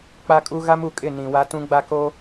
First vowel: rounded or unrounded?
unrounded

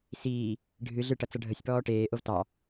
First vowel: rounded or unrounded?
unrounded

